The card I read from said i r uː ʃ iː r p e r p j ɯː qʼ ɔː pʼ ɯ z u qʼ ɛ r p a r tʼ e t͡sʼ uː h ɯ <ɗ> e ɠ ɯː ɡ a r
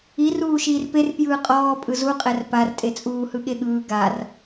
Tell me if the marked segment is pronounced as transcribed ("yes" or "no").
no